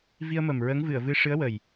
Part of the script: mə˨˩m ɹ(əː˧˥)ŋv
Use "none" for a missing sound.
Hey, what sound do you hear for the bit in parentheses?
əː˧˥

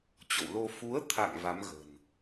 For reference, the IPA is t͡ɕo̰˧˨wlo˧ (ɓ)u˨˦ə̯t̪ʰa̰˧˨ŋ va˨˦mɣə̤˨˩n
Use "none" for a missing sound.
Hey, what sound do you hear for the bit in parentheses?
f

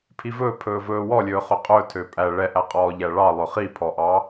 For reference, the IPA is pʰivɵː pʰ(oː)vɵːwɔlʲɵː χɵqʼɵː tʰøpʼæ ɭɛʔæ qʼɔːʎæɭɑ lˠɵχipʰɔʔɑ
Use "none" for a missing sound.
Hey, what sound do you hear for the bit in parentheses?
ɵː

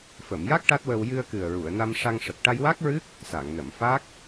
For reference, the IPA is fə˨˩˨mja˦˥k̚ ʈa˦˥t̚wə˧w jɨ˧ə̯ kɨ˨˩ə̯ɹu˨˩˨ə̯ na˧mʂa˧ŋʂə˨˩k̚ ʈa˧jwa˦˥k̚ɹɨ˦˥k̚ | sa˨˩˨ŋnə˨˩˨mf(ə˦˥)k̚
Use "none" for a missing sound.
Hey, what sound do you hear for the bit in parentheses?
a˦˥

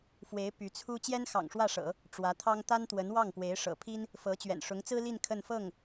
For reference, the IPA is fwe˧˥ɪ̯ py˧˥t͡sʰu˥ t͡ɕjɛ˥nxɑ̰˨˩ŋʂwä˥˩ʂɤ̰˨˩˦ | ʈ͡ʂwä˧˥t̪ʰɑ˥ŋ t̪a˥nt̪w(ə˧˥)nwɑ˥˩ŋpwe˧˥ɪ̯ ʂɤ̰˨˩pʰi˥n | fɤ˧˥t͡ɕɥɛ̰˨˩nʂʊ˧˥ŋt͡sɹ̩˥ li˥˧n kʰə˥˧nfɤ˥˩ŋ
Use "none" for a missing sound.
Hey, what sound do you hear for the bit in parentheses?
ə˧˥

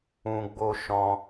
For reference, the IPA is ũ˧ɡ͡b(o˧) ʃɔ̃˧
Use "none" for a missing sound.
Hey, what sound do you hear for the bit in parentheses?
o˧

